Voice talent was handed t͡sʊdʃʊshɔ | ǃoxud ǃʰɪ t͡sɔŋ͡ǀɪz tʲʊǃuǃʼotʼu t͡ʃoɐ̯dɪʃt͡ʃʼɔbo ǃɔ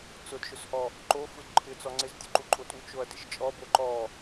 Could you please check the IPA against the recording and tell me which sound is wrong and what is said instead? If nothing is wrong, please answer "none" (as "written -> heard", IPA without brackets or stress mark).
none